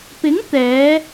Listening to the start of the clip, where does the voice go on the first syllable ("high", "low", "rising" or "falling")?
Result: rising